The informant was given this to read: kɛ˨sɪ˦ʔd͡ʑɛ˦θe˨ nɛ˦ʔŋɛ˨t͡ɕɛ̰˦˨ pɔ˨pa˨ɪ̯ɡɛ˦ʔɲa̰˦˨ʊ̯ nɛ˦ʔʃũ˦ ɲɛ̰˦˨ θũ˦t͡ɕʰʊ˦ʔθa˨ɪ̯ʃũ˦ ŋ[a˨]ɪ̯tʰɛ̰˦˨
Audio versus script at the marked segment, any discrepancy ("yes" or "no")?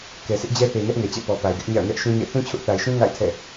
yes